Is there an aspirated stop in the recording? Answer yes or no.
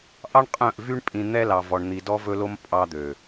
no